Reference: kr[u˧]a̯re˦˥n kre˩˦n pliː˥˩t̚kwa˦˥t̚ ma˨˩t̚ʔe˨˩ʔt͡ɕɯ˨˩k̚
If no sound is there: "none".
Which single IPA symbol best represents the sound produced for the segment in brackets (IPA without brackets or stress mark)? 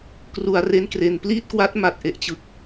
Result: u˨˩